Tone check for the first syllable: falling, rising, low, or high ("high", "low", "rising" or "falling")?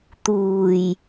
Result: low